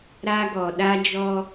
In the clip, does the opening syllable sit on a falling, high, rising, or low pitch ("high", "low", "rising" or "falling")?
high